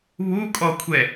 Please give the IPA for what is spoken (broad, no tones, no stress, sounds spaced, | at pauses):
β u kʼ ɔ kʷʰ ɛ